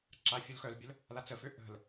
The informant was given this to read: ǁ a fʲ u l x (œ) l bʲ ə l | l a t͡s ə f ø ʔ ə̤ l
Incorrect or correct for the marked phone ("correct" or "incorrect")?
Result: correct